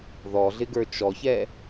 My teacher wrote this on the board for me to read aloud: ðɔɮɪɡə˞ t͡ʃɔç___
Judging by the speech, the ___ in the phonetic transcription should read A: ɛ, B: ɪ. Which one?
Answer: A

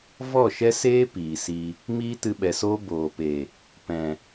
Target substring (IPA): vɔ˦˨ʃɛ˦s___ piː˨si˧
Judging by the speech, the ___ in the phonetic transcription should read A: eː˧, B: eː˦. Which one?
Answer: B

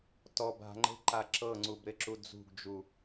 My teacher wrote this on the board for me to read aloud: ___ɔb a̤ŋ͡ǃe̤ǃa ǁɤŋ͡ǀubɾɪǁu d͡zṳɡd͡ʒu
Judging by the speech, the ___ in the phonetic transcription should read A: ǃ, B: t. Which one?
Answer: B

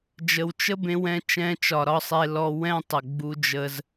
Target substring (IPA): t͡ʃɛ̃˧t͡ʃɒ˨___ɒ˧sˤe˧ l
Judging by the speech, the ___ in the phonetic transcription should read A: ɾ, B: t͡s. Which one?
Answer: A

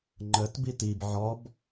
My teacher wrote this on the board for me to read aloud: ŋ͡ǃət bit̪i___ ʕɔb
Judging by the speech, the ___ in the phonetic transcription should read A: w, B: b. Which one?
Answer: B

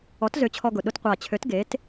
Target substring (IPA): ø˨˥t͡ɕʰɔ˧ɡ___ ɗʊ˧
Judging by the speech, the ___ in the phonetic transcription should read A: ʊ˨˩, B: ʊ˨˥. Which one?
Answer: A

